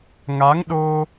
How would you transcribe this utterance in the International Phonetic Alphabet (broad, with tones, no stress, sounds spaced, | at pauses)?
ŋ a˨˦ ŋ ɗ o˧